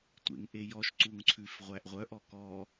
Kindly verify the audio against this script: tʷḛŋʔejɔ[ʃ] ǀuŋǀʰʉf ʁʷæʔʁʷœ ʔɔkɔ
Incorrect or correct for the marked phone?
correct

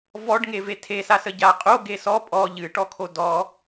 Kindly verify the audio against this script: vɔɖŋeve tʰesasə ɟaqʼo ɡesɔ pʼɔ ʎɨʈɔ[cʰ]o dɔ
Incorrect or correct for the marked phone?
incorrect: kʰ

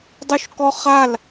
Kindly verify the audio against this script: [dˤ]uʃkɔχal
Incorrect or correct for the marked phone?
correct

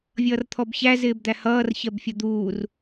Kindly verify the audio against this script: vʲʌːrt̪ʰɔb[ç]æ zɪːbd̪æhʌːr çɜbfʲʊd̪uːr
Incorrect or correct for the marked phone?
correct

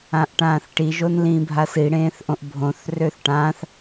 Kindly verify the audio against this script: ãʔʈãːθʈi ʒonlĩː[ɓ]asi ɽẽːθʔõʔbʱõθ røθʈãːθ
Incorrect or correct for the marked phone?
incorrect: bʱ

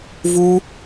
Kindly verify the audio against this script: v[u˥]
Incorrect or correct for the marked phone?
correct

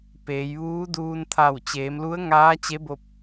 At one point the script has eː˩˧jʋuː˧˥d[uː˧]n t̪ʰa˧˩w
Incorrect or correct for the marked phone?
correct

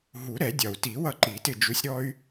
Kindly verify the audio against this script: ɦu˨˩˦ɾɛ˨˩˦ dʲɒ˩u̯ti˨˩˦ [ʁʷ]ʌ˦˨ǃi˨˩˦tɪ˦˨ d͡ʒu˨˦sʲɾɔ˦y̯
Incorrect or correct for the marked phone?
incorrect: w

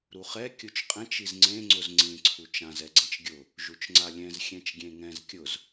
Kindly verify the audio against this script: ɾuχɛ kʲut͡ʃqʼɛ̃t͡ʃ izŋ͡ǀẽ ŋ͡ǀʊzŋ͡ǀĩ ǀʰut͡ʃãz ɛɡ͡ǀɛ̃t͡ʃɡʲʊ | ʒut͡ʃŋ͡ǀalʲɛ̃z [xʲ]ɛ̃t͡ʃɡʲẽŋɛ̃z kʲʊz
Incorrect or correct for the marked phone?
correct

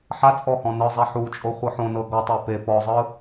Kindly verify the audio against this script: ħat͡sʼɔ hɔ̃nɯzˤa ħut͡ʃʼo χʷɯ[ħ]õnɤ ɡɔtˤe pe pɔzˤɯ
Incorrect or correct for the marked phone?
correct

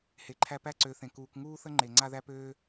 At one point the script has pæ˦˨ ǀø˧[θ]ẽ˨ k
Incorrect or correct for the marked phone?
correct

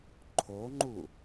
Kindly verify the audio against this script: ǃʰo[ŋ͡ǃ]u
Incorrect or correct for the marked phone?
correct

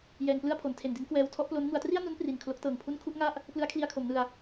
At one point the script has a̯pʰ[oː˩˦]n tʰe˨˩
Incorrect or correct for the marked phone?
incorrect: o˩˦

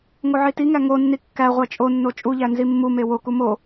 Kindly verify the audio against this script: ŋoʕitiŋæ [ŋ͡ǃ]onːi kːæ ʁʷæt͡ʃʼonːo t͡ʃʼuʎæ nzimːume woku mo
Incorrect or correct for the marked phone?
incorrect: ŋ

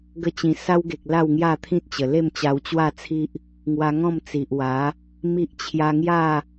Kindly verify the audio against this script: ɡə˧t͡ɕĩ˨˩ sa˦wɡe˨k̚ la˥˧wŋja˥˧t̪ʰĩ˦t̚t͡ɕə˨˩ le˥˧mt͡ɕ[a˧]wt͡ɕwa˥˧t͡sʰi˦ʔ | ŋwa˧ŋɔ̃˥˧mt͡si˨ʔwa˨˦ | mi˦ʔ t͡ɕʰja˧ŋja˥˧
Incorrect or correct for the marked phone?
correct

